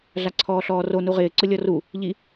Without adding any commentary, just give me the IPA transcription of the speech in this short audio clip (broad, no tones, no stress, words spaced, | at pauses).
ɮaǀʰɔːɬɔːro nuʁɪː ǀʊlʲɔru | ʎi